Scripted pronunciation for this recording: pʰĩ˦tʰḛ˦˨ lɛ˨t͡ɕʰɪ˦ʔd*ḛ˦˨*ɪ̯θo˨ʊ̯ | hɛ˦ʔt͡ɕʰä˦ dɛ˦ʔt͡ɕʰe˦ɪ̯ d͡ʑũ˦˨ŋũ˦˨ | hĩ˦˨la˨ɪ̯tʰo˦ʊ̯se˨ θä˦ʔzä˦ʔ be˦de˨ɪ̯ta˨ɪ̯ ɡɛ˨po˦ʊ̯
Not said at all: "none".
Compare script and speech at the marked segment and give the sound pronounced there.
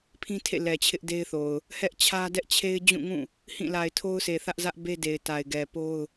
e˦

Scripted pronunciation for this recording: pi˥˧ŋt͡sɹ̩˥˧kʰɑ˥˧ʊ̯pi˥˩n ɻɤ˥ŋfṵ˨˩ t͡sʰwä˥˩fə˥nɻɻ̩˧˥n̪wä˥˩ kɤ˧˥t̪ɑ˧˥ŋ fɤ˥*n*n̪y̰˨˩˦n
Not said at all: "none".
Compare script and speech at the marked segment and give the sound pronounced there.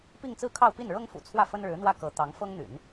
ŋ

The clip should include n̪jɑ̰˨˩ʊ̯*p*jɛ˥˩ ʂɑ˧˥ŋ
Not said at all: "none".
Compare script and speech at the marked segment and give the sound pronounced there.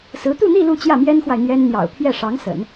pʰ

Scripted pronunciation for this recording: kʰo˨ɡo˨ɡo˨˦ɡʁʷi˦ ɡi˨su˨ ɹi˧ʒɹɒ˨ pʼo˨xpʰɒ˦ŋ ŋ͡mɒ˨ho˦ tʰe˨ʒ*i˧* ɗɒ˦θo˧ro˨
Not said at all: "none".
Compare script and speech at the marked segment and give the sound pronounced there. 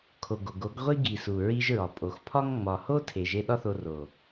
e˧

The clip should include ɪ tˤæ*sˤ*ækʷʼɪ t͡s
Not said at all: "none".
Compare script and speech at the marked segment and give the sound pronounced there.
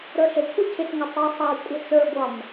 sˤ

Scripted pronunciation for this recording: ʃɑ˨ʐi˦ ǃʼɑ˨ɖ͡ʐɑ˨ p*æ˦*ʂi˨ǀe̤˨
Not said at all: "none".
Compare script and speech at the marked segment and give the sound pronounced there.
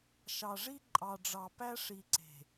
æ˦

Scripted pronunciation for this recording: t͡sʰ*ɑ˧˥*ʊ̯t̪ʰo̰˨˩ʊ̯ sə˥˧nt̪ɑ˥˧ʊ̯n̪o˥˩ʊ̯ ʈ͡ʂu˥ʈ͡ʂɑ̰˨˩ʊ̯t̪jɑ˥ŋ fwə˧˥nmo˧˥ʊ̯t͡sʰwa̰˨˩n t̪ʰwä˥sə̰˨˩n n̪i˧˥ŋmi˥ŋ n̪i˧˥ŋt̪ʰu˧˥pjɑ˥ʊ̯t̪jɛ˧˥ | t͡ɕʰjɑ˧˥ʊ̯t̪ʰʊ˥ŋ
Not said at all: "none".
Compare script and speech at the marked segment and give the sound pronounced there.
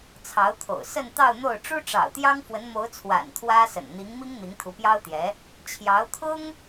ɑ˧˥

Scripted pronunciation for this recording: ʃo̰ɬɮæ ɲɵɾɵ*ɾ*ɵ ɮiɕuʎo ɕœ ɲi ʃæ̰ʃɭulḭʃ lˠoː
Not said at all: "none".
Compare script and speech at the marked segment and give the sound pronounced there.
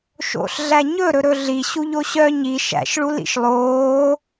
ɾ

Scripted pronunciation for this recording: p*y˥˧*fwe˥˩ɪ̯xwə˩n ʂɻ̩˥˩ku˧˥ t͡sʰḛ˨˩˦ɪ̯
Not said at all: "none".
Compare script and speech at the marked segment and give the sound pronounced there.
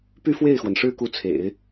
y˥˧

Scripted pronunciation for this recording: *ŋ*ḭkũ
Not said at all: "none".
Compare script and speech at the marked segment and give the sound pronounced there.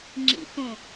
ŋ͡ǁ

